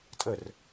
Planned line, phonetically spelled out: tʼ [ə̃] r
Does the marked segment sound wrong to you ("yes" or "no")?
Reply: yes